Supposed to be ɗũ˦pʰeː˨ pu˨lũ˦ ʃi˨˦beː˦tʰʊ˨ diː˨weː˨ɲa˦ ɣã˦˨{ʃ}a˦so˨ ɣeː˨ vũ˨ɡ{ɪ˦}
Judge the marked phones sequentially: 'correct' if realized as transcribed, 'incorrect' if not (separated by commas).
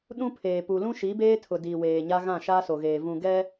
correct, incorrect